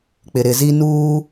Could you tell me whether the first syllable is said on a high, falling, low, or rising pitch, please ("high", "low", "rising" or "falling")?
low